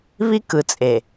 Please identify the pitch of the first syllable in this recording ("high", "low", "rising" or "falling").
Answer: high